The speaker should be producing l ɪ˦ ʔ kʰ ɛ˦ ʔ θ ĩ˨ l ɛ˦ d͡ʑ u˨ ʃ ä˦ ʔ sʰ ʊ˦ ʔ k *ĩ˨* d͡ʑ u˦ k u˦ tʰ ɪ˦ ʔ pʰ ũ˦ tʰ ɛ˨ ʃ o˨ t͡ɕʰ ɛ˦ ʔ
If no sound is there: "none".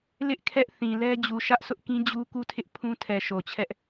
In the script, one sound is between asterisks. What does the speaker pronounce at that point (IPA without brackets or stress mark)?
ĩ˦